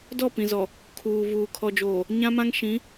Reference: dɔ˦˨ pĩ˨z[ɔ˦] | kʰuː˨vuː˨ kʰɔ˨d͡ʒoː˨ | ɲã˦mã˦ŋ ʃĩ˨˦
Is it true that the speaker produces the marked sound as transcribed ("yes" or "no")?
no